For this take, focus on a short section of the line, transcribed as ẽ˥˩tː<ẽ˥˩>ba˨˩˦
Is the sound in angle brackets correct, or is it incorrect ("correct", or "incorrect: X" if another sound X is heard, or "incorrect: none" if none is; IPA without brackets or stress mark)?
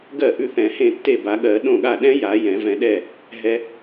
incorrect: e˥˩